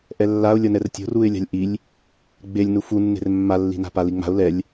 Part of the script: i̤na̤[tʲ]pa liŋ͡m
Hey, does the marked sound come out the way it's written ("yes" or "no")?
no